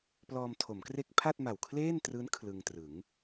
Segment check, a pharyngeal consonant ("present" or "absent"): absent